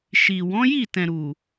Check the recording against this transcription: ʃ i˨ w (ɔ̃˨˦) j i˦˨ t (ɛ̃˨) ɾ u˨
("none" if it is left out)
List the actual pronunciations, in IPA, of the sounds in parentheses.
ɔ̃˨˦, ɛ̃˨

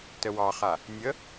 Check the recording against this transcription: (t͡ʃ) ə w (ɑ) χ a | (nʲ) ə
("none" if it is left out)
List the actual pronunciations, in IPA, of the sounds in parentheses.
t, ɑ, nʲ

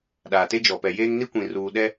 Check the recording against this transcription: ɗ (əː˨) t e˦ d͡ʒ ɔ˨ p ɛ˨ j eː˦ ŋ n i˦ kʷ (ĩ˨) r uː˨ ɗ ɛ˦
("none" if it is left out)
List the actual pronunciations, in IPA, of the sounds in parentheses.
aː˨, ĩ˨

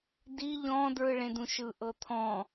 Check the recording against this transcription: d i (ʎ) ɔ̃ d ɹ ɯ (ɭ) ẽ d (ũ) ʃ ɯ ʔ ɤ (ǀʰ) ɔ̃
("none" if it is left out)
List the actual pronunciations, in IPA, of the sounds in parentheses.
ʎ, ɭ, ũ, t̪ʰ

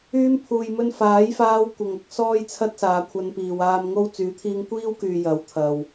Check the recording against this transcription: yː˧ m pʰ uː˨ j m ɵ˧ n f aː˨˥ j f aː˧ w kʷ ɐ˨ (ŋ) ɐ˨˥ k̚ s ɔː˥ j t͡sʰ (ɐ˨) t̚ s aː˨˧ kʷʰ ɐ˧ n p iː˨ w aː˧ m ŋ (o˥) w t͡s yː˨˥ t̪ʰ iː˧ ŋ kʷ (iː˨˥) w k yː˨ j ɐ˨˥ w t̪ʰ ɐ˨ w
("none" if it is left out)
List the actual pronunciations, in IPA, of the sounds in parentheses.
ŋ, ɐ˥, o˥, iː˥

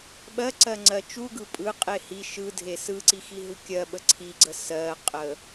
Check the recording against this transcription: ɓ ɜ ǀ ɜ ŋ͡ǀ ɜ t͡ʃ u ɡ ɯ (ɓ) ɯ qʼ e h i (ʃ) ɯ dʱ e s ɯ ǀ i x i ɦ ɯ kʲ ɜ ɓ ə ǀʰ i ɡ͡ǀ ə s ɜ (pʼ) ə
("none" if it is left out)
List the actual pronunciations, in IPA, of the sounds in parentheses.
pʼ, ʃ, qʼ

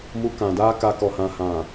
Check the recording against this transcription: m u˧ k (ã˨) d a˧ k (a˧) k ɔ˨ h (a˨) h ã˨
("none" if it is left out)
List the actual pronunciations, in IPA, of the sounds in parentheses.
ã˨, a˧, ã˨

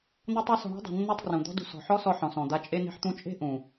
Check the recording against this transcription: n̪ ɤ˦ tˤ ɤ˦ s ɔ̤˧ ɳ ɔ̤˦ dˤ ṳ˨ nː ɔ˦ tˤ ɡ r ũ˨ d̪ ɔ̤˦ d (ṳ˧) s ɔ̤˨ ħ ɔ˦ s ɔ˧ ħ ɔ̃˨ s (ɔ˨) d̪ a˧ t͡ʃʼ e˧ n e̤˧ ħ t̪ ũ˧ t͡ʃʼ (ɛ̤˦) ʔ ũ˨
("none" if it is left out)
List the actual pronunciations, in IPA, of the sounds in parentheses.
ṳ˧, ɔ̃˨, e̤˦

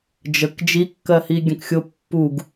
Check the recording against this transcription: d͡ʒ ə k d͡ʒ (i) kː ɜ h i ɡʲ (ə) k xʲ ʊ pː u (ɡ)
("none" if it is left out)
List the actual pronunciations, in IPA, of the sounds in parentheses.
i, ə̃, ɡ

